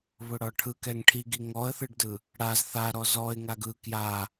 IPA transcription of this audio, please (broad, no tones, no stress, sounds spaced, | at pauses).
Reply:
β ʊ ɽ ɒ ʈʰ ɯ k ɛ ŋ ʈʰ i ɡ i ŋ ɔ ə̯ θ ɯ ɖ d ɯ | ɽ a z θ a ɾ ɔ z ɔ ɪ̯ ŋ a ɡ ɯ k j a